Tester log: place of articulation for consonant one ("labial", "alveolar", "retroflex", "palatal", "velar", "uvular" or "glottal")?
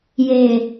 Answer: palatal